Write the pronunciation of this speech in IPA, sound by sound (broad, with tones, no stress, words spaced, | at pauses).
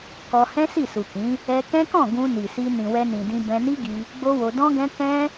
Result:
kɔ˧ hɛ̃˦si˦˨su˨kĩ˨˦ | ɛ˧kɛ̃˦kɔ̃˦˨ ɡũ˧ni˨si˧ nĩ˨wɛ˧nĩ˨dĩ˧ bɛ̃˧ni˦ɡi˧ | ɡ͡bo˦wo˧ dɔ̃˦ɡɛ̃˦ kɛ̃˦